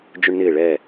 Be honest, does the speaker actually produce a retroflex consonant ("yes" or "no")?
yes